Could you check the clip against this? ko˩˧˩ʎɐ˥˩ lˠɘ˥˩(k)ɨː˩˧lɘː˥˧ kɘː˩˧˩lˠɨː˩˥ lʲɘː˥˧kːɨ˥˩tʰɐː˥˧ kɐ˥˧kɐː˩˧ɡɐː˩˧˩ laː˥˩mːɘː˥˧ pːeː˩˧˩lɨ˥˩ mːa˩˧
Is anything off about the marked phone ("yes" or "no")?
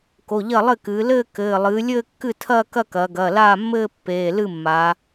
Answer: no